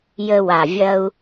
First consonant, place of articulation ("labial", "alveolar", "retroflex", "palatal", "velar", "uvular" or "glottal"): palatal